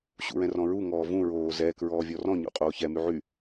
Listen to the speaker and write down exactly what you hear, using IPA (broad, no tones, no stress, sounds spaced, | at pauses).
ɕ ṵ ɹ ɛ̃ r ɔ̃ ɹ u ŋ ɔː v ũ ɹ oː z ɛ k ɹ ɔː vʲ ɔ r ɔ̃ ɲ ṵ qʼ oː ç ɛ m y ʕ y